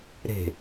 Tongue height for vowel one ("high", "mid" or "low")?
mid